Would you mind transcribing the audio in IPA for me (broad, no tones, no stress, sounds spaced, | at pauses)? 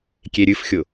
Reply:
kʲ e ɾʲ ɨ f xʲ ʊ